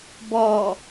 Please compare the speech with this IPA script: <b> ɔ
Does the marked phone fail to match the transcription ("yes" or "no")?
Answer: no